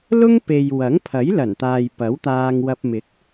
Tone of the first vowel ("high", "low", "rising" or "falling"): high